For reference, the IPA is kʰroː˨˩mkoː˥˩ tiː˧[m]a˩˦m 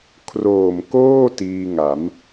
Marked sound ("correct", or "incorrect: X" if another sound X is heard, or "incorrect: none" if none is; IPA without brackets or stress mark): incorrect: ŋ